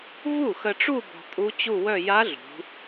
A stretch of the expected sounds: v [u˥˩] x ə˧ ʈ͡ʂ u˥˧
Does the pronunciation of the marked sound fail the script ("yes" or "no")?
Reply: no